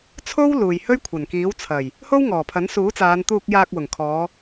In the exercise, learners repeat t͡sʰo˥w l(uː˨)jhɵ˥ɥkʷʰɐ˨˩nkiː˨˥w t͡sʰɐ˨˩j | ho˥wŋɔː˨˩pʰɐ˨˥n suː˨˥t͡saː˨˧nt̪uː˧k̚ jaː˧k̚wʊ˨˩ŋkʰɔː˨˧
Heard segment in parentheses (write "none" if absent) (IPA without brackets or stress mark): uː˨